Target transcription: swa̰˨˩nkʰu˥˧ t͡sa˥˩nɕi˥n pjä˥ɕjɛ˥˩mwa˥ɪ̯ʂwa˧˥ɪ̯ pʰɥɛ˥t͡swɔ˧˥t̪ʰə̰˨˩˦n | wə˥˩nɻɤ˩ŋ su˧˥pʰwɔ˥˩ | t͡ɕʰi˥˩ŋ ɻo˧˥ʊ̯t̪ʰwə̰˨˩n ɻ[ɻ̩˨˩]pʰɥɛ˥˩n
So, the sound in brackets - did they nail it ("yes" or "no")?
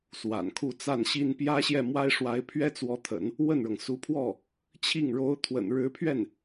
no